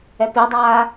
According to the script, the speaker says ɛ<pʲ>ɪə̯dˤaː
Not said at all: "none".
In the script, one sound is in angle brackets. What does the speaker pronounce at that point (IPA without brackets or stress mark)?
p